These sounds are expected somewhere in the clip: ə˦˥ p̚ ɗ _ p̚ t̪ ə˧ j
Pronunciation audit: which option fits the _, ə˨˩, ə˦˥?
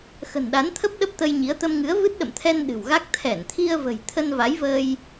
ə˦˥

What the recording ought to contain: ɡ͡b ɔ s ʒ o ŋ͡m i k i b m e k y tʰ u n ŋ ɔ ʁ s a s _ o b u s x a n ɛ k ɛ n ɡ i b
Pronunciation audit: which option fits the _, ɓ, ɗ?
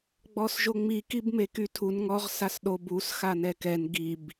ɗ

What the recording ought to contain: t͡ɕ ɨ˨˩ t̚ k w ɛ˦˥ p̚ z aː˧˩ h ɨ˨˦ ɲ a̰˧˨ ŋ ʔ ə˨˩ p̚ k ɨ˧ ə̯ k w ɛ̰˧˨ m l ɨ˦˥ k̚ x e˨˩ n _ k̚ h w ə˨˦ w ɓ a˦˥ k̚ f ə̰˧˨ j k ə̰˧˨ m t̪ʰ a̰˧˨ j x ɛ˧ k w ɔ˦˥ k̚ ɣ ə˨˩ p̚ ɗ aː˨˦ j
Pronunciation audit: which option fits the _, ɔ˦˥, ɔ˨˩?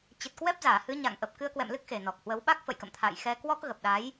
ɔ˨˩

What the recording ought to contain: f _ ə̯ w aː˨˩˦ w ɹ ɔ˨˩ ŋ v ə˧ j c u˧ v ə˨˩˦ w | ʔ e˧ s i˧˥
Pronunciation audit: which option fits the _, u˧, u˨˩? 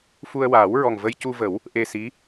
u˧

